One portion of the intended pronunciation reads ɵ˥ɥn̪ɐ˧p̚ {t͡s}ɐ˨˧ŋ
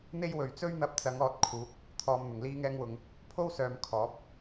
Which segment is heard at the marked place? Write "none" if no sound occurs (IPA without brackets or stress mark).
t͡s